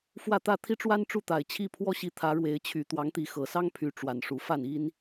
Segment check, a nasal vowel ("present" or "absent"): absent